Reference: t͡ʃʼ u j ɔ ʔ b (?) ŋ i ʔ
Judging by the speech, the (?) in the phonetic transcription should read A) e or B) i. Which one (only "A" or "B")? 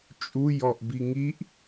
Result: B